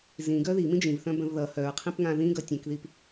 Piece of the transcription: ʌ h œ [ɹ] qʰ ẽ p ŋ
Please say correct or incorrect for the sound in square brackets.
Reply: correct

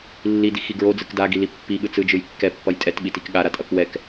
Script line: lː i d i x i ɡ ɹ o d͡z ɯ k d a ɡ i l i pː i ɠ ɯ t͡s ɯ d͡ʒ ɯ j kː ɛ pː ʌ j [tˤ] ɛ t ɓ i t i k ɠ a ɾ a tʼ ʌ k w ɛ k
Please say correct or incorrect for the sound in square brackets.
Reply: incorrect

